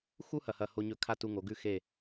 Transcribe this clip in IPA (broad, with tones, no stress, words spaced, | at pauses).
xu˥ hɐ˧˩hɐ˧˩ho˧ɲɵ˧˩ kʰa˥˧tu˧ŋo˩˧ɡʉ˥˧ xe˧˩